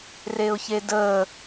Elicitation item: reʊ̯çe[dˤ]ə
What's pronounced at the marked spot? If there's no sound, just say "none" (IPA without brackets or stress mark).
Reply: d